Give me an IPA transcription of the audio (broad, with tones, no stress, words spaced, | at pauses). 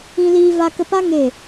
ĩ˧liː˧ va˧kə˧pa˦ ŋe˦˨